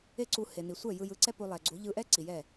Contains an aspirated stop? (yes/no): no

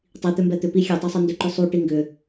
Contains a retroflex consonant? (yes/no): yes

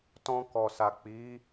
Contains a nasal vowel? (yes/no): yes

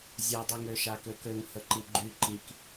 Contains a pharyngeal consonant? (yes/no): no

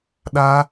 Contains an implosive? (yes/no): yes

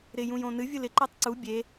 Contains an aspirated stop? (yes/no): no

